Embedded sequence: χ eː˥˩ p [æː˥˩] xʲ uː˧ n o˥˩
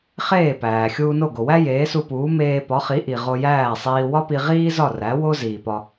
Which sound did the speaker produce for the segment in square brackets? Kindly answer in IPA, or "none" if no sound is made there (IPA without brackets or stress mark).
æː˩